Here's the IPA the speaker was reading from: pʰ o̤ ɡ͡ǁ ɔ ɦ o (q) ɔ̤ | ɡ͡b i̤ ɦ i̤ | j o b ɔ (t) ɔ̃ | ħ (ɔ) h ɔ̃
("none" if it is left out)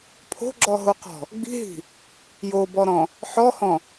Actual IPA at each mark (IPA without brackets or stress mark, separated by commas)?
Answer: q, ɾ, ɔ